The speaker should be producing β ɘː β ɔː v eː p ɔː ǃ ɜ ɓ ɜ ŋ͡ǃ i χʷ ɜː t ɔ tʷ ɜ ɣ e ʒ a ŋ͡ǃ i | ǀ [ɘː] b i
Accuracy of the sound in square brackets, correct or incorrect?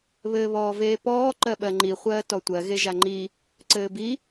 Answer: correct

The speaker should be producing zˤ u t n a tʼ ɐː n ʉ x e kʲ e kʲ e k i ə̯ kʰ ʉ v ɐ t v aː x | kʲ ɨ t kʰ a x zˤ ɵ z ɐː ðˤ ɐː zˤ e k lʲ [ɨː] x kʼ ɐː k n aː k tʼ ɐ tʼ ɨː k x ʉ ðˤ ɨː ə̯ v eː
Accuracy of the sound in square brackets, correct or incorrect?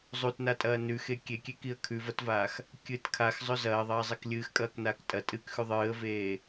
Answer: correct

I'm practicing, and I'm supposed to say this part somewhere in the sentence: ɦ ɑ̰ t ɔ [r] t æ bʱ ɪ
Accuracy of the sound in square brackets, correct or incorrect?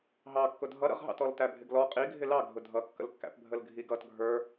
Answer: incorrect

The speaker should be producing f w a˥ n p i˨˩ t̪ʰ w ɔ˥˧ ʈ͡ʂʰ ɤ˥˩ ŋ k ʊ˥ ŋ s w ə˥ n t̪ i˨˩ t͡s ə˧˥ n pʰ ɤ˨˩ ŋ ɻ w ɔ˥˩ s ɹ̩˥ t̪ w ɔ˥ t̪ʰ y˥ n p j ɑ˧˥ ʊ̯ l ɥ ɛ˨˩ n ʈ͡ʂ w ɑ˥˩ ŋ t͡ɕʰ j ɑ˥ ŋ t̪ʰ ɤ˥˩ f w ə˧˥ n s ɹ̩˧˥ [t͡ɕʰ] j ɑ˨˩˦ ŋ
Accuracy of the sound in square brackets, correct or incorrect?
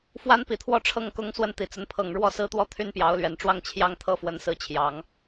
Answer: correct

